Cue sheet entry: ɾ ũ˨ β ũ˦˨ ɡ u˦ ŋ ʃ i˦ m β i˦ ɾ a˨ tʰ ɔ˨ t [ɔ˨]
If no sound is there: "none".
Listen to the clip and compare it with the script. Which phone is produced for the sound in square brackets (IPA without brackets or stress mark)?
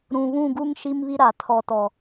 ɔ˨